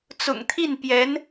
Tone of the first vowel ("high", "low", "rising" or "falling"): low